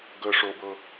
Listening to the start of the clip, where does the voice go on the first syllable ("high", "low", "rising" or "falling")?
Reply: high